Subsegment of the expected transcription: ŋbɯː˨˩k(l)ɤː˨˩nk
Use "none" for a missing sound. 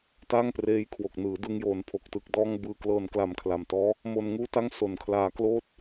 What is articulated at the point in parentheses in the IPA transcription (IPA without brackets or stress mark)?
l